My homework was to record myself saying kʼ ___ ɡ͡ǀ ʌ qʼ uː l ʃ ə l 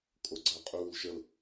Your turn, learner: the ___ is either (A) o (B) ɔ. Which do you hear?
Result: A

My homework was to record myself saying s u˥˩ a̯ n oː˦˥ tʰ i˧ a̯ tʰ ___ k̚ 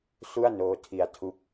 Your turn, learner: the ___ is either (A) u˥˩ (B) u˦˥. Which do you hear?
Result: B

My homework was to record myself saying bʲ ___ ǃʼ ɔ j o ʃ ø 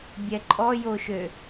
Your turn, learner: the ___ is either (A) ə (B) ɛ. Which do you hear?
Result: B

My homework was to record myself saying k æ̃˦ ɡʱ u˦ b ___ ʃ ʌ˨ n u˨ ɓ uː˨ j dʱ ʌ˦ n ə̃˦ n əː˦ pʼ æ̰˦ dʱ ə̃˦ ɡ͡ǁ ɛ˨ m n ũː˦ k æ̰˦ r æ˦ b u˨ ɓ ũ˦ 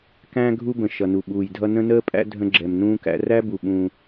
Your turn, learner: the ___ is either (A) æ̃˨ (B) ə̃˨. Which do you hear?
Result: B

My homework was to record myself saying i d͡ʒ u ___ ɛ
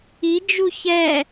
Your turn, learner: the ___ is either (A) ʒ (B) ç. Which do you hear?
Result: B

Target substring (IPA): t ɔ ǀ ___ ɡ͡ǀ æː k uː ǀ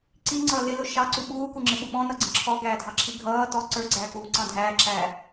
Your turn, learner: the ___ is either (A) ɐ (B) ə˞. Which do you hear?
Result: B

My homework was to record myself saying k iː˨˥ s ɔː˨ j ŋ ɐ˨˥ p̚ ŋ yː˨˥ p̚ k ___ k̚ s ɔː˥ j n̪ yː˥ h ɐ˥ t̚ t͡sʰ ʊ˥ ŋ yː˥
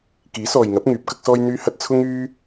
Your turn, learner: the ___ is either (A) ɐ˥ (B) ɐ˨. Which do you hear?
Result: A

